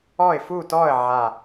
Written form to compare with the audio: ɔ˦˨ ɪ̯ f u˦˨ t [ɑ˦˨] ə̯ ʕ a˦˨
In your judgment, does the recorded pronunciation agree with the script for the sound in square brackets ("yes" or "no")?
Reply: no